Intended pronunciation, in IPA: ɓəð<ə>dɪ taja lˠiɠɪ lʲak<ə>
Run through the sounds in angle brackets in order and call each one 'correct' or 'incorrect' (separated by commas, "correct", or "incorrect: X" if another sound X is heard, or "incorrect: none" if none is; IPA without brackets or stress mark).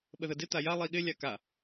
correct, incorrect: a